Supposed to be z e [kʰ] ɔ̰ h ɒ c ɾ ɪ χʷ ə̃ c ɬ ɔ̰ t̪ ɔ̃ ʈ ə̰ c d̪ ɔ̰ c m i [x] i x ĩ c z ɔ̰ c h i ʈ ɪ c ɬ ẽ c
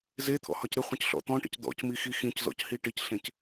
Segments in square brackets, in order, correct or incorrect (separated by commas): incorrect, correct